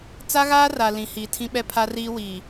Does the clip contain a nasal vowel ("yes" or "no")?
yes